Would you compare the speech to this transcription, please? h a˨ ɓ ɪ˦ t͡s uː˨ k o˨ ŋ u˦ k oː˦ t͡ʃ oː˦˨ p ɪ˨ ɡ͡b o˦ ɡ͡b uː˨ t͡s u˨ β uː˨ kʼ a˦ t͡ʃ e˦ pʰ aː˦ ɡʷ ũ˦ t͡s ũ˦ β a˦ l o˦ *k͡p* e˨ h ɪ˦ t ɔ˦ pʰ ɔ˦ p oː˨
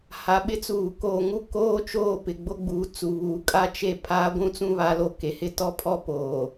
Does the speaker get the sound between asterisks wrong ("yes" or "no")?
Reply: yes